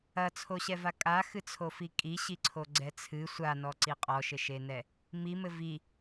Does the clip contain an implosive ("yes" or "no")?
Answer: no